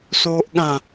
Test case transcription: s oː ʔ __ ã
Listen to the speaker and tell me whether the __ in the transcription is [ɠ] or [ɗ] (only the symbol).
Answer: ɠ